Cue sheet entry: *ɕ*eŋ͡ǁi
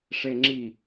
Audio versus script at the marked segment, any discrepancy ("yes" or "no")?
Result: yes